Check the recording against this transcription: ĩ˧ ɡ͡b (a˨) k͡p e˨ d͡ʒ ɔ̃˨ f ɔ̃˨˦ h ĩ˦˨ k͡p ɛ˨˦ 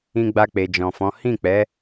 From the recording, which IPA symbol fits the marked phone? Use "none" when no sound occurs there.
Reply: a˧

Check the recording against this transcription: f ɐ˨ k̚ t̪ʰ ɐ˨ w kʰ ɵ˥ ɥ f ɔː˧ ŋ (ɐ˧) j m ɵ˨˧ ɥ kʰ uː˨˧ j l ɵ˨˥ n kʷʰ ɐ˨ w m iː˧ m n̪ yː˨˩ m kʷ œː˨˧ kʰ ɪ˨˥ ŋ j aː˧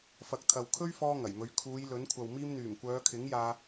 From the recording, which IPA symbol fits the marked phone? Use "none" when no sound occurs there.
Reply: ɐ˨˩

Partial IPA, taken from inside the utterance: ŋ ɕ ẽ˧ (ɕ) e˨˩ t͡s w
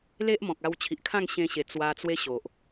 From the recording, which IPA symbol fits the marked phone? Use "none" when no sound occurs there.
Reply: ɕ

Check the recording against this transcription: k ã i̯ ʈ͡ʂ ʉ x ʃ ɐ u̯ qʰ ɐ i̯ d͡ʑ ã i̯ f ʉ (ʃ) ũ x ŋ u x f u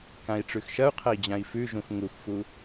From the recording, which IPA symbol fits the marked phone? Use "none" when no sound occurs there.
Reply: ʒ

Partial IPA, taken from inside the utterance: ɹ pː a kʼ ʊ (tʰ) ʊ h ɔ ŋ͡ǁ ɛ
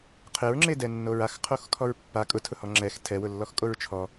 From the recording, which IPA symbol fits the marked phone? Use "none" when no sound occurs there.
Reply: tʰ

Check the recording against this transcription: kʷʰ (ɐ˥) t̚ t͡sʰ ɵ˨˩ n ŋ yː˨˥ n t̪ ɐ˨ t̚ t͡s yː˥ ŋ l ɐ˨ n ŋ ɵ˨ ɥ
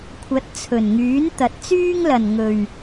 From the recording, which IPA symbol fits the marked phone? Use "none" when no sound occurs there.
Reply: ɐ˨˥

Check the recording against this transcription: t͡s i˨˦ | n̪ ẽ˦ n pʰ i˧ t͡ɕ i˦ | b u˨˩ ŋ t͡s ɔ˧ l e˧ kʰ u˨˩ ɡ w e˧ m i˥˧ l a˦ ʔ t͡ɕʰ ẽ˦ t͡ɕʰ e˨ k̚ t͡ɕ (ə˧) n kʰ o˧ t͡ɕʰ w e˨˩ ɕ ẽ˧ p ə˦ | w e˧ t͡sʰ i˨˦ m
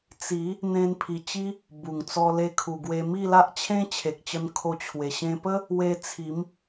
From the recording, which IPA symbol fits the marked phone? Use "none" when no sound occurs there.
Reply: ə˧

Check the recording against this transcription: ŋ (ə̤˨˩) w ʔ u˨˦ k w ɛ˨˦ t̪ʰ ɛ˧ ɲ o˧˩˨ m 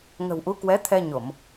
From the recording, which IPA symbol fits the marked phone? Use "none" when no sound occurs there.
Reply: ə̤˨˩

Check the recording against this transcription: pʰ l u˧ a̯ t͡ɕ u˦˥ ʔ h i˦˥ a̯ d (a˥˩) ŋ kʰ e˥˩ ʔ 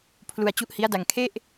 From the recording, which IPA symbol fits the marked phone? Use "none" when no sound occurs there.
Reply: a˧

